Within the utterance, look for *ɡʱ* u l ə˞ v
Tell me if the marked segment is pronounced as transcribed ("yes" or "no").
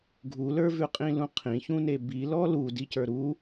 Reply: yes